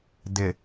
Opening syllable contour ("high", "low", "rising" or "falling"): low